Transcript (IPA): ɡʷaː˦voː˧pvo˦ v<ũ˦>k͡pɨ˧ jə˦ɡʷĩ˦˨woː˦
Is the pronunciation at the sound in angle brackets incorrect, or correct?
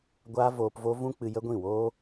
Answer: correct